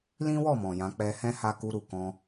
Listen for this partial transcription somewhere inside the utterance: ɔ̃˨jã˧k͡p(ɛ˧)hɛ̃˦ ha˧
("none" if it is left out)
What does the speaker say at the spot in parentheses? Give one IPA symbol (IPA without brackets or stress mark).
ɛ˧